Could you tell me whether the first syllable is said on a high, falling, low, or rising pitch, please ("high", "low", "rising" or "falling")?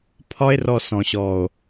high